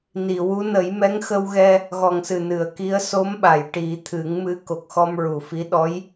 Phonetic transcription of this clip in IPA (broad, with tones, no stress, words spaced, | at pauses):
ni˨˩˨wu˧˥ nə˨˩˦j mɛ˧˥ŋxə˧wɣɛ˧ | ɣɔ˨˩ŋsɨ˨˩ nɨ˨˩˨ə̯ki˧˥ə̯ so˧˥mɓa˨˩˨jʈi˨˩˦ t̪ʰɨ˨˩˦ŋmɨ˧˥ ko˨˩k̚xɔ˧mɹu˨˩fi˧˥ ɗɔ˧˥j